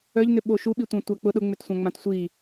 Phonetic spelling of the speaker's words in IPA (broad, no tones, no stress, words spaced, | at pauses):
œʎnʏɓo ʃuɓitʷã tʷak͡pʊ ɗʊŋ͡mʏtsʷãŋ͡mãt sʷi